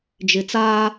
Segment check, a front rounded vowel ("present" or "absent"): absent